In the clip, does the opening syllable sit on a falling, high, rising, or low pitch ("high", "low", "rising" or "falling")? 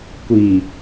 low